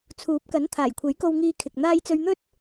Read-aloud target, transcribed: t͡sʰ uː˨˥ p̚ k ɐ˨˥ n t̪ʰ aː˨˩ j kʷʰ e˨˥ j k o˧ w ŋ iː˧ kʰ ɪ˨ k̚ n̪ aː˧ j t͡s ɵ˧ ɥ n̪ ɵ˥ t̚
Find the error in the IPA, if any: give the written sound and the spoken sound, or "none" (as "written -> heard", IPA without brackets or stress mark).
none